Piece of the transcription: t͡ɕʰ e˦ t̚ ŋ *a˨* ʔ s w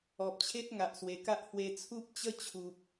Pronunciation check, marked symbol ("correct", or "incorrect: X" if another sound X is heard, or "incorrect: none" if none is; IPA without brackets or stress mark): correct